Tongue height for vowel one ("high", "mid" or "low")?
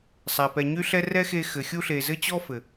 low